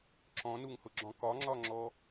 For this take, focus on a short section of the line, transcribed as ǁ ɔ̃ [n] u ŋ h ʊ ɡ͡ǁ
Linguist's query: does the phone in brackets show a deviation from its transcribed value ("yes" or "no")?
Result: no